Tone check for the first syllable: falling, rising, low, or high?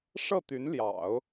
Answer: falling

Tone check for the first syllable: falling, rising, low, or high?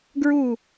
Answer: falling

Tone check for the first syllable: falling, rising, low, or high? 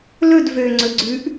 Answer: falling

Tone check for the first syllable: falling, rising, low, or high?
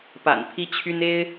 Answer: low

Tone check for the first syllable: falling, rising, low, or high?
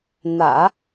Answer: low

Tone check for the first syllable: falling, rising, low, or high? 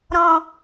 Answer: low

